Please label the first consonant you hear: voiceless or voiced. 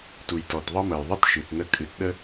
voiceless